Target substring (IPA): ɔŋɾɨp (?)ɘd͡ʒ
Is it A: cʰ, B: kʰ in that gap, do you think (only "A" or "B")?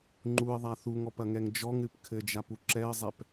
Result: B